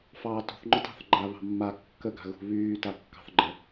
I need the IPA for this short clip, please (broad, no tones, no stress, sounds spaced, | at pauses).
f ɑː t ṳ θ ŋ͡ǃ ʊ t ɑ̤ θ ɡ͡ǃ a β ɑ̤ mː a kː ə ɡ a̤ ɣ ṳ β yː t a kː ɑ̤ θ ɡ͡ǃ ə